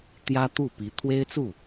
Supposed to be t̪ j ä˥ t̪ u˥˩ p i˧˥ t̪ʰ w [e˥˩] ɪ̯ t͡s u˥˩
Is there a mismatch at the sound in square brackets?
yes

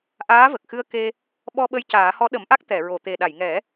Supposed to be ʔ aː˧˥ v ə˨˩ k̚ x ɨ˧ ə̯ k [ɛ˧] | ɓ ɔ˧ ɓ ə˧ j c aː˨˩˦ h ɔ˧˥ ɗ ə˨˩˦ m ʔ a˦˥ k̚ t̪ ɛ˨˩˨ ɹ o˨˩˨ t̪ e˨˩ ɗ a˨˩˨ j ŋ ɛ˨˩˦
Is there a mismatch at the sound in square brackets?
yes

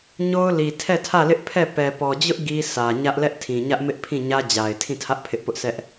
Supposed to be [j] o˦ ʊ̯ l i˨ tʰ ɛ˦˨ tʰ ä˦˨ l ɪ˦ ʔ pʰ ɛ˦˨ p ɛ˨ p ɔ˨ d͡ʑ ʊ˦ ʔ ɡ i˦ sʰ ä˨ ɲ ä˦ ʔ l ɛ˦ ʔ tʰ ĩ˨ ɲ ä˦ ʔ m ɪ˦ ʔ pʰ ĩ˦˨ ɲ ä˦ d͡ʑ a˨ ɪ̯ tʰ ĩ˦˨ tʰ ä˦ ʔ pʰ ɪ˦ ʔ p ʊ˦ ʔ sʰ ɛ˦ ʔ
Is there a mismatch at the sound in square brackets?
yes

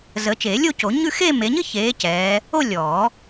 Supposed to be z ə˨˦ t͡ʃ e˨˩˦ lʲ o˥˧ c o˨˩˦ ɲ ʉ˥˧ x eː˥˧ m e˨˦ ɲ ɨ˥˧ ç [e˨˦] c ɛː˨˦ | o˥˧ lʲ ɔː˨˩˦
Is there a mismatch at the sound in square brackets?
yes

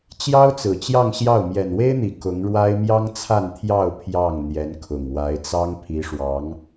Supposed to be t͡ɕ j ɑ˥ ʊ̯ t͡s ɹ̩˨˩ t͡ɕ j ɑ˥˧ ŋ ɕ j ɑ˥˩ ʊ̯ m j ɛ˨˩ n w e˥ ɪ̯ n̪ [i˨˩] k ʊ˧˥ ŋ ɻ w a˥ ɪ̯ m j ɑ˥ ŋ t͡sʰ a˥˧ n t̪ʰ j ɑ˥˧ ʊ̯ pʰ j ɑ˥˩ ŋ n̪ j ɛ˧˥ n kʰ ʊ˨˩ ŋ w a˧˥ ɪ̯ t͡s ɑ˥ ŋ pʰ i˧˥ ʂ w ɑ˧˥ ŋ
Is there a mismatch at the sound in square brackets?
no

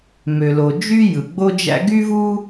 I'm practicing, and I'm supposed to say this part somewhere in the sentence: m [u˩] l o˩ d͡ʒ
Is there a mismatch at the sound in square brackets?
yes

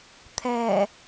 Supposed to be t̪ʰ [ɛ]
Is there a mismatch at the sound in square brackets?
no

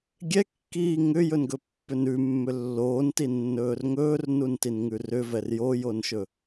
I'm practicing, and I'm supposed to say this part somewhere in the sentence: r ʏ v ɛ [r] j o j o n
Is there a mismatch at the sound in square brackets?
no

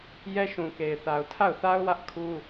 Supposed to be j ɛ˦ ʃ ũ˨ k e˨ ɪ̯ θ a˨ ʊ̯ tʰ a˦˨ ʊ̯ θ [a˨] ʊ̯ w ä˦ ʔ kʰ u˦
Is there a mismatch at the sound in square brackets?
yes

